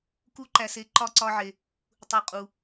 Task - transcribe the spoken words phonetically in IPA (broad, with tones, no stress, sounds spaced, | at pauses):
k u˦ ǃ æ˧ s e˦ ǃ ɒ˦ ǀ ɒ˦ ʕ e˧ | tˤ u˧ qʼ u˧